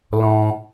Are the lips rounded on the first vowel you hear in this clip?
yes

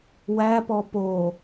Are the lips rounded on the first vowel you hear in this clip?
no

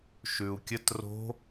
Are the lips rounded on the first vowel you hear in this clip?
yes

